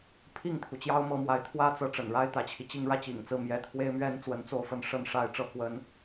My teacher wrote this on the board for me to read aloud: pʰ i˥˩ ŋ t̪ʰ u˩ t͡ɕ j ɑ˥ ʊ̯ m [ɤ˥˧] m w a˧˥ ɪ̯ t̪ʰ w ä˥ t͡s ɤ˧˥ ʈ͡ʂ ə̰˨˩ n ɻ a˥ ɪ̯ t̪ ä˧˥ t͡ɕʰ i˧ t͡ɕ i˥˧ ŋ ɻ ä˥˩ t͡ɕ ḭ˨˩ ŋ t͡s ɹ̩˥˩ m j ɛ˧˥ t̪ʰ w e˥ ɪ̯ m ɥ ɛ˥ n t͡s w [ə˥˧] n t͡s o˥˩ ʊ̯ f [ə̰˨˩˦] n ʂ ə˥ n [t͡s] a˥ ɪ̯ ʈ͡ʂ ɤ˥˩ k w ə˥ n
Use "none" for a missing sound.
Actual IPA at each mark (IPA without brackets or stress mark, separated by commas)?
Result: ɤ˧˥, ə˧˥, ə˥, ʂ